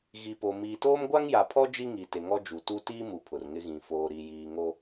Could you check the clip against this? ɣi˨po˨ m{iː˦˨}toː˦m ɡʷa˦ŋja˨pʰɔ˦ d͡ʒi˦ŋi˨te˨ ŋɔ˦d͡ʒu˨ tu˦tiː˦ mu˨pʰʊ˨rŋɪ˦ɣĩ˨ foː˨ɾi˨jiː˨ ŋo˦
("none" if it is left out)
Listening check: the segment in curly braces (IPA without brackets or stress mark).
iː˨